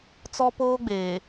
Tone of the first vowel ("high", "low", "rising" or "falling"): high